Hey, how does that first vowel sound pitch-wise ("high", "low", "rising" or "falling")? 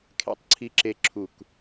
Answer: rising